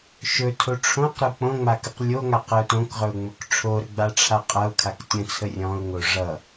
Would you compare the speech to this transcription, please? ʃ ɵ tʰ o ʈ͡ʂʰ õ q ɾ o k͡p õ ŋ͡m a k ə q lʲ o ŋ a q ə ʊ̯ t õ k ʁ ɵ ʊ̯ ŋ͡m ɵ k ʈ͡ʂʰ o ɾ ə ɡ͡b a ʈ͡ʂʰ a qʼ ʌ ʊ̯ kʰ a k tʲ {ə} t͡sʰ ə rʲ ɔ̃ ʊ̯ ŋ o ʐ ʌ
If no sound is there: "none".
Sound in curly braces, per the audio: ə̃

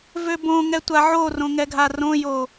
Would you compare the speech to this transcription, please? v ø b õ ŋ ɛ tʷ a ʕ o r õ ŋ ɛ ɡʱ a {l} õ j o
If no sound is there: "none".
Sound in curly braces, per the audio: r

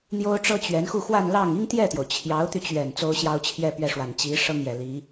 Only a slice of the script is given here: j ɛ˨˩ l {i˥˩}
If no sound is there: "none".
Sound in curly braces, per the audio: i˧˥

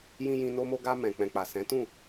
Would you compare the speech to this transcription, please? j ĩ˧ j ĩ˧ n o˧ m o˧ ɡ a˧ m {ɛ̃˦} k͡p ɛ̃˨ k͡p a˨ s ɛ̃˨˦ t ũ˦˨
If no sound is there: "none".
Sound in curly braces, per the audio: ɛ̃˨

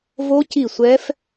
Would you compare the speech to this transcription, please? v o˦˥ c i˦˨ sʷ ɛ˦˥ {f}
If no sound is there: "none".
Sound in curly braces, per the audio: f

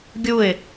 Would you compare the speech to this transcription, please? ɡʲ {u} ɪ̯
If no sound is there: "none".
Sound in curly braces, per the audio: u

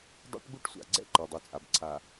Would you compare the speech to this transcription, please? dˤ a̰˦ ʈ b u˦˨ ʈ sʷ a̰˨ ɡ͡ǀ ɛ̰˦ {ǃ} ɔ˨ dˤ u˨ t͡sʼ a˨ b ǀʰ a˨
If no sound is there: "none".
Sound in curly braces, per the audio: ǃ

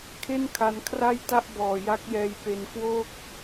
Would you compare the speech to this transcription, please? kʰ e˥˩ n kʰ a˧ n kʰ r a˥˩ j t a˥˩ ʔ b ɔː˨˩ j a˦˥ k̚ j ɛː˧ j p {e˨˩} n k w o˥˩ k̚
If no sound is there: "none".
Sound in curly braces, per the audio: e˧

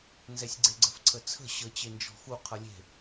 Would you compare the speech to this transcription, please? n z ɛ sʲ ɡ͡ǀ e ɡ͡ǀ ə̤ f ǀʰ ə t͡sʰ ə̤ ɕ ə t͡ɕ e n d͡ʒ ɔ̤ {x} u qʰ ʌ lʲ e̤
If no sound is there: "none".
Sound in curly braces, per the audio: x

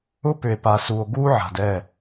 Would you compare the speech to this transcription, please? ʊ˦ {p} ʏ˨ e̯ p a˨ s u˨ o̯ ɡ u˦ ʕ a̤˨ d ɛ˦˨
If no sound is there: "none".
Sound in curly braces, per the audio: p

